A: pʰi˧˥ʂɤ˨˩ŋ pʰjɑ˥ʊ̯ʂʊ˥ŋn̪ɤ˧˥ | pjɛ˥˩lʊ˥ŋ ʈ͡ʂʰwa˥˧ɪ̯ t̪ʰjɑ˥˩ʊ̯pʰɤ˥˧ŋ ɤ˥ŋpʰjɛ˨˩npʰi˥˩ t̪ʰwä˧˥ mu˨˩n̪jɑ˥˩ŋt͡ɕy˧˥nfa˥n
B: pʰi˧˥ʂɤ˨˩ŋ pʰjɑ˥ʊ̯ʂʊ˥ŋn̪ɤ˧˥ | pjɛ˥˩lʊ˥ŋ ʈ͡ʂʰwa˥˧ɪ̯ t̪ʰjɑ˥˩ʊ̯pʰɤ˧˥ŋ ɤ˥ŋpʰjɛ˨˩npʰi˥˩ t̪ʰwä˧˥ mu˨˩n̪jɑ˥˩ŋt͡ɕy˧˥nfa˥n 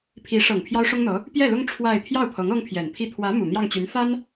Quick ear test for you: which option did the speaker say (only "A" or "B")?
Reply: B